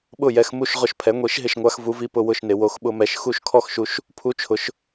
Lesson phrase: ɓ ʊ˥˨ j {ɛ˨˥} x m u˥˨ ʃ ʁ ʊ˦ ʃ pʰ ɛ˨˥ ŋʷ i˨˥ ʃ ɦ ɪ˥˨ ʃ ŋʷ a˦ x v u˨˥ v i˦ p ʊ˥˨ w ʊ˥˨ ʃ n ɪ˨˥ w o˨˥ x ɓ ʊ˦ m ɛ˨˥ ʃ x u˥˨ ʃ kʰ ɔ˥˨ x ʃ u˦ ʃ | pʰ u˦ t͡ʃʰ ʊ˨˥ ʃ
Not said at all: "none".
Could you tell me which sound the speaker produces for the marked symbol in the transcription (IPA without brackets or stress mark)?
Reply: ɛ˨˥